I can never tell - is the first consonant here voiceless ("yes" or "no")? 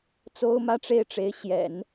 yes